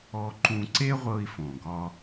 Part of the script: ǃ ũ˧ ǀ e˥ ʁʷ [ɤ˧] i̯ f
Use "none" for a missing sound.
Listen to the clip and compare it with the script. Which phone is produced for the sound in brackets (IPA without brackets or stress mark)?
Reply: ɤ˧